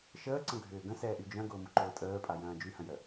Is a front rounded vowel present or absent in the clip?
present